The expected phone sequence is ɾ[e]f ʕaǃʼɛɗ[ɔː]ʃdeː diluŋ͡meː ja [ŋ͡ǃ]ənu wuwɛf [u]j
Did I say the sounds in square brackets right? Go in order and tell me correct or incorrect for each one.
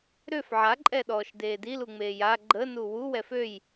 incorrect, correct, incorrect, incorrect

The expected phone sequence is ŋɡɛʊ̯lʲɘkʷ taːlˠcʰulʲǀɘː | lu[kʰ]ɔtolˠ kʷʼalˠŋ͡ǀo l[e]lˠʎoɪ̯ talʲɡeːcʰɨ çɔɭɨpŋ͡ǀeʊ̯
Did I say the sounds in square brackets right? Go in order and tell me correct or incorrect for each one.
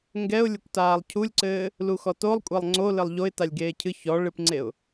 incorrect, incorrect

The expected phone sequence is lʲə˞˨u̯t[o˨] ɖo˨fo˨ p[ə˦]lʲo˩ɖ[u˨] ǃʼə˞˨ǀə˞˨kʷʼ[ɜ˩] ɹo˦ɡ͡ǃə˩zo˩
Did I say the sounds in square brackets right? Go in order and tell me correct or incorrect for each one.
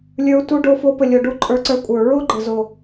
incorrect, incorrect, correct, incorrect

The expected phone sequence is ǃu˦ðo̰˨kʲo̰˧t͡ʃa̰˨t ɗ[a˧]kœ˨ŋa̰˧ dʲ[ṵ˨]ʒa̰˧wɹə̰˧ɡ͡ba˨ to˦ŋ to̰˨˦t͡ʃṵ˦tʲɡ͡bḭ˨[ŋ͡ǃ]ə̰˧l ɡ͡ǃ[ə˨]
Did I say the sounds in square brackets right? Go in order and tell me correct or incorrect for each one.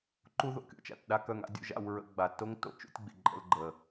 correct, incorrect, incorrect, correct

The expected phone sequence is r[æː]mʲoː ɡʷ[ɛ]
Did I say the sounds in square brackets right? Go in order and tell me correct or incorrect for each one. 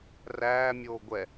correct, correct

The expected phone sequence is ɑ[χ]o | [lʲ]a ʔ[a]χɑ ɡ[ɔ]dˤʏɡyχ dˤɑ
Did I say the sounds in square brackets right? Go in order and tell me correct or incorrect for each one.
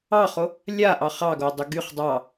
correct, correct, incorrect, incorrect

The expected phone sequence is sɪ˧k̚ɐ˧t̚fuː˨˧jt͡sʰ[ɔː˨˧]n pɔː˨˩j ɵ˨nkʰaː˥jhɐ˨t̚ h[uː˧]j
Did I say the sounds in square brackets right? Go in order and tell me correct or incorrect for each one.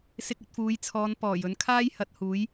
correct, incorrect

